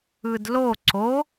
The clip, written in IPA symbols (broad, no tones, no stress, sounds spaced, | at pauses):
ɯ d l o ǀ o